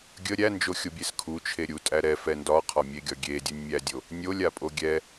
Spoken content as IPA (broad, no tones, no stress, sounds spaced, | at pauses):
ɡʲ ə ɾʲ æ n d͡ʒ o xʲ o bʲ e s kʰ u t͡ʃʰ e ɾʲ u tʼ æ ɾ ɛ f ɛ n d ɒ qʰ ɒ mʲ e ɡʲ ɒ ɡʲ e dʲ u nʲ mʲ æ dʲ o | nʲ o lʲ a pʼ o ɡʲ ɛ